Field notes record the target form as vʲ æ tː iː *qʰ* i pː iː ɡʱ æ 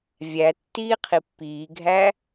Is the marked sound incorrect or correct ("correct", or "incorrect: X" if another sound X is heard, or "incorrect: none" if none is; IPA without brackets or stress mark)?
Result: correct